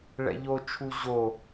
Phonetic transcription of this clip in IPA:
ɭɛ̰ʎot͡ʃʰu ʑo

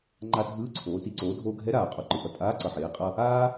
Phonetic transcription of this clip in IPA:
ŋ͡ǃa˧ dʱɯː˧˥ǀʰoː˩˧ ti˩˧ǀoː˩˧dʱoː˧ɡʱɛ˧˥ ɾaː˩ qʼo˧ǃɯ˩˧ʔʌ˩ tʼaː˧˥ǀʌ˩ħeː˩˧ qʼʌ˧ | aː˥

